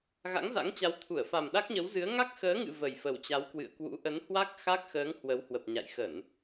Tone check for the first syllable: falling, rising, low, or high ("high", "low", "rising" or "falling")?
rising